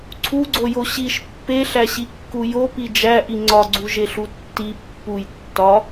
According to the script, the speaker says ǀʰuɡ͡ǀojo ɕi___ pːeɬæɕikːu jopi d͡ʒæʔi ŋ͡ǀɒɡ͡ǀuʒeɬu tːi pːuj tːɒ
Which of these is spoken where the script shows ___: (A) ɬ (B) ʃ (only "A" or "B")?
B